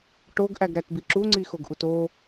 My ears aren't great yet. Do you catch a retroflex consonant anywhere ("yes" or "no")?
yes